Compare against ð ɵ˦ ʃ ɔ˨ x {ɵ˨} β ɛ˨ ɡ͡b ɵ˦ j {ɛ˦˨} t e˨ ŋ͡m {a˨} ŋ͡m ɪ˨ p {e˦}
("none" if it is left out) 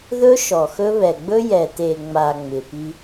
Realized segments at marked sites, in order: ɵ˦, ɛ˨, a˨, i˦

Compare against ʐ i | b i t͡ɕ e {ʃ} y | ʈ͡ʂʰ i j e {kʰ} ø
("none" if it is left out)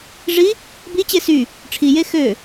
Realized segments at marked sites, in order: s, x

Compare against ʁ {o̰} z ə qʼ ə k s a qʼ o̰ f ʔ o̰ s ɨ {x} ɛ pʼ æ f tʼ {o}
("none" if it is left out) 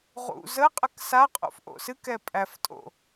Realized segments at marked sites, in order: ṵ, k, o̰

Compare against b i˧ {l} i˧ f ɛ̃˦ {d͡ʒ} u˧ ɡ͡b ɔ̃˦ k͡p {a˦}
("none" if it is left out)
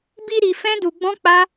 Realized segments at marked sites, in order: ɾ, d, a˦

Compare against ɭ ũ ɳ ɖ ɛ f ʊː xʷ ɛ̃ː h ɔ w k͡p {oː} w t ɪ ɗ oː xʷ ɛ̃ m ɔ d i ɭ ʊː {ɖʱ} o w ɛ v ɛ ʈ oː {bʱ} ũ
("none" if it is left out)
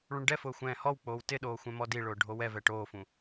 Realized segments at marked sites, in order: oː, ɖʱ, f

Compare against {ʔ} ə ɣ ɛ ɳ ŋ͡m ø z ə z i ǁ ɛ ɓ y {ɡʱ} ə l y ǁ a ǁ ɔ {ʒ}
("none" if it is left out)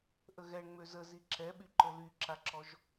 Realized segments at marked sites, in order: ʔ, ǃ, ʒ

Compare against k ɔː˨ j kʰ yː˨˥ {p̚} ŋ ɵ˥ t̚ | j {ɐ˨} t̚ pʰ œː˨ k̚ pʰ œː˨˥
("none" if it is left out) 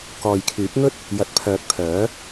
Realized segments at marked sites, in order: p̚, ɐ˨

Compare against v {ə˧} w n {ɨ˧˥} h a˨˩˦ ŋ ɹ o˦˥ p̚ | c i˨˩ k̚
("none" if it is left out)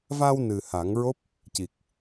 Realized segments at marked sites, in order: a˧, ɨ˨˩

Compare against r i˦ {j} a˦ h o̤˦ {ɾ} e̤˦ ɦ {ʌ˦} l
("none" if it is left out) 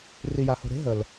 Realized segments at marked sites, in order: j, ɾ, ə˦

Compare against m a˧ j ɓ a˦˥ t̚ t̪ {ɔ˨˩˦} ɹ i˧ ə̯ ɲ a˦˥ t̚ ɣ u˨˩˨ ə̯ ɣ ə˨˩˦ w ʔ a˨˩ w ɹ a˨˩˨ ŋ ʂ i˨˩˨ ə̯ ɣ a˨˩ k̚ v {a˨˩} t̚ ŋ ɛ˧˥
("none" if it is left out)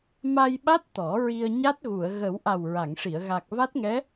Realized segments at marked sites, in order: ɔ˨˩˦, a˦˥

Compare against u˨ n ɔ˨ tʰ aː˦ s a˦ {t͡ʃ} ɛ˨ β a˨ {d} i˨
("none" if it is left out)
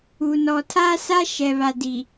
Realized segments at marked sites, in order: ʃ, d

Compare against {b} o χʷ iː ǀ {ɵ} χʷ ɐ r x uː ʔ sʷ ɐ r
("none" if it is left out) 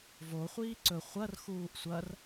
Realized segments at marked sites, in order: v, ɵ

